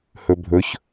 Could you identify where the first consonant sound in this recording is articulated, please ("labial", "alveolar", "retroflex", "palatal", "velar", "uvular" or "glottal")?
glottal